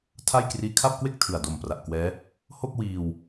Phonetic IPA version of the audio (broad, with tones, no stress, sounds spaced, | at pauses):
tʰ a˥˩ j k r iː˦˥ kʰ a˥˩ p̚ k w e˥˩ k̚ tʰ ɯ˨˩ a̯ d o˨˩ m p r a˨˩ ʔ k w ɛː˦˥ | h o˥˩ k̚ w iː˧ w